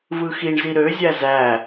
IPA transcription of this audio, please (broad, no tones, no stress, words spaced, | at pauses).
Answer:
vɯxiɳzi ɾøzʲæ zæ